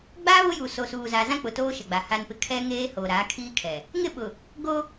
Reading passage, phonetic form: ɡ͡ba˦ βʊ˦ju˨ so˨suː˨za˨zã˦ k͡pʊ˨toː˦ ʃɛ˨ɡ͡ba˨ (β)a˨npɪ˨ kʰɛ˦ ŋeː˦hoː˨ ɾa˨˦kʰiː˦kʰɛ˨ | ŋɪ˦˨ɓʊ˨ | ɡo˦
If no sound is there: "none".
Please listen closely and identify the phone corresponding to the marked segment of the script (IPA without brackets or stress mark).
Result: h